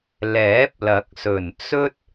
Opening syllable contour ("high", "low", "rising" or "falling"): rising